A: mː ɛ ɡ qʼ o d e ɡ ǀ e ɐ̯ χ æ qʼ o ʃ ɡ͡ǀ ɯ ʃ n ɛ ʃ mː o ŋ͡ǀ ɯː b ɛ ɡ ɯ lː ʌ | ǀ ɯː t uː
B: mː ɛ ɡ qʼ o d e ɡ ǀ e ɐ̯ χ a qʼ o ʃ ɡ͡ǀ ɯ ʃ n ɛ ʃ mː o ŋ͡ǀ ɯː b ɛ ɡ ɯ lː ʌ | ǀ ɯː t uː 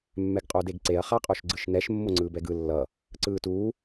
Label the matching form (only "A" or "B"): B